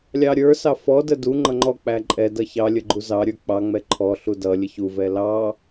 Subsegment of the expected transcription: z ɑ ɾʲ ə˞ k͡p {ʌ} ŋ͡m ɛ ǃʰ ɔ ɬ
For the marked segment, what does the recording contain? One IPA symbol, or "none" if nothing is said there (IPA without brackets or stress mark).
ɑ